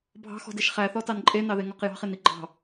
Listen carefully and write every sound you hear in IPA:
bʱɑ̤xɔ̤deʃ χæθɔtɑn ǃʼenɑðeŋɔq jɑ̤χeni ɡ͡ǃɑ̤

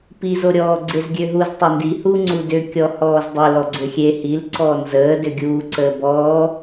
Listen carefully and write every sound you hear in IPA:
pizoɾʲɔː ɡ͡ǀezɡʲøɦuz tˤendihuː ŋ͡ǀudʏ kʲɔhɔːzdˤe lɔɡ͡ǀʏxʲe hilǀɔː nzəː dʏɡʲuːǀəː bɔː

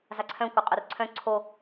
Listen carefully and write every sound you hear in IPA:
zaǀʰœ̃ kʷœqʼœrǀʰœ̃ ǀʰo

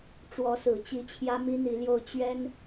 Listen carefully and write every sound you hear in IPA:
ʈ͡ʂwɔ˧˥sɹ̩˨˩t͡ɕi˧˥ t͡ɕʰjä˥mi˥n̪i˧˥ljo˥˩ʊ̯ t͡ɕɥɛ˥n

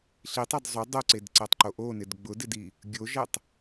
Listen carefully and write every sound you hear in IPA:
ɬitˤɛd zˤo dˤoǀedǀɛtˤǃo ʔonɪd ɡ͡bʊdɪdi | ɡʲoʒɛtˤ

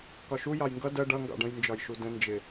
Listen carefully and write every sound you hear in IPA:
kɒʃu jɑjŋɡʌ dɜ ɖʌ ŋɡɑ̰ɖə̃j nd͡ʒɒjʃudə̃ nd͡ʒɪ

